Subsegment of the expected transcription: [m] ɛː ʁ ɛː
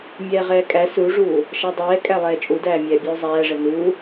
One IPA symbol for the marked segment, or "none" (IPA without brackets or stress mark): mʲ